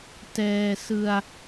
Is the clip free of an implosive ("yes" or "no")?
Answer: yes